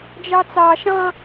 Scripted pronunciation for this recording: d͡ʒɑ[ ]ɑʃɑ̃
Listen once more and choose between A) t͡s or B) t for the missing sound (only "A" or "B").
A